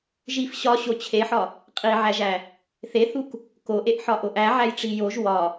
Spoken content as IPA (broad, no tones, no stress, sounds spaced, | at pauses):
ʒ i f ɕ ɒ ɕ o t͡ɕʰ e ħ ɒ | qʼ i ʕ æ ʒ æ | θ e θ u k | k o ʔ e ʔ ħ ɒ ʔ o ʔ æ ʕ æ j ʈ͡ʂ i j o ʒ w ɒ